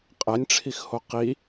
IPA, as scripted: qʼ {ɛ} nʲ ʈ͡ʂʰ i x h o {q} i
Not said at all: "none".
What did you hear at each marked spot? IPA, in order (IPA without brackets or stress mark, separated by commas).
ɛ, q